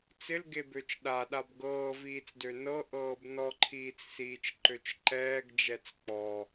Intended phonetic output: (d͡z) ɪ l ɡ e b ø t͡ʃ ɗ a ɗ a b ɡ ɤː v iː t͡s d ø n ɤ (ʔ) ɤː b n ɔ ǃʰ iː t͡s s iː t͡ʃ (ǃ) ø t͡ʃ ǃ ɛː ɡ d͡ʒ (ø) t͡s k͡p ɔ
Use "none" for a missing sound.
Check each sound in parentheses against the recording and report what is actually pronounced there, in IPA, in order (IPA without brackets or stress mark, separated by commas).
t͡s, ʔ, ǃ, ɛ